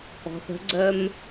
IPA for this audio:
ɔ̤ θ ə̤ ɡ͡ǀ œ m

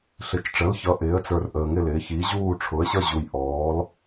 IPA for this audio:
ɬ ɪ˨ t͡ʃ ʈ͡ʂ ə˩˥ l ç ʌ˩˥ ʔ ɪː˩˥ ə̯ t͡s ə˞˨ r ʔ əː˨ ŋ ɪ˥˨ l ɪː˩˥ ç i˩˥ ʑ uː˥˨ ʈ͡ʂʰ ʊ˩˥ ə̯ ɕ ʌ˥˨ ʑ u˨ j ʔ ɔː˩˥ l

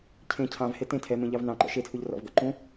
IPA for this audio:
cʰ ẽ cʰ ɑ̃ v h e t ẽ tʰ ɛ m ẽ ʎ ɑ v n ɑ̃ ǃ ɔ̰ ʃ e tʰ u ʎ r ɔ̰ v ɡ ɔ̰ ǃ ũ

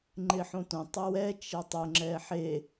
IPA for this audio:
ŋ͡ǃ ɪ ħ õ t õ tˤ ɛ w ɛ t͡ʃ ɛ tˤ ʊ ŋ͡ǁ ɛ ħ e

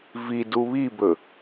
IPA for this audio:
v i d u β i b ɵ

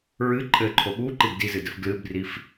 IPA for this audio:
ɹ ɨ ǃʼ ɘ ǃʰ o ɓ u ǃ i b d i z ɨ d ɘ f ɡ l ɨ b r i f

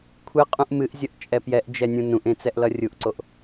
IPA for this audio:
kʷʰ ɨ qʼ ũ ʔ m ɨ ʔ zʲ ʌ ʔ t͡ʃʼ ɛ p j ɛ ʔ d͡ʒ ɛ nʲ ũ n ũ ʔ ẽ t͡s ɛ ʔ l ʌ rʲ u ʔ ǀ o ʔ

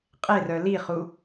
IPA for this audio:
qʼ e r œ l i χ u

